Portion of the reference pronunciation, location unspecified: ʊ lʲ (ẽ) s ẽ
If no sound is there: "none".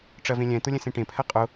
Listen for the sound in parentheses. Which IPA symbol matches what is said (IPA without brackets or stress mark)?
ɛ̃